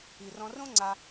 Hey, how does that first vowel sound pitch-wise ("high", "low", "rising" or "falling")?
low